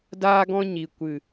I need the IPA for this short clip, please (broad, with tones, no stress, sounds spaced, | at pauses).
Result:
d aː˦ ɡ ɔ̃˦ ɲ i˨ kʷ ɨ˨